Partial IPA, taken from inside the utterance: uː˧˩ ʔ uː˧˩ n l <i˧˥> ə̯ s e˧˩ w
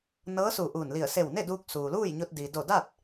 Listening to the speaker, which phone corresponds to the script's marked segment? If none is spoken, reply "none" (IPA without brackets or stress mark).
i˧˩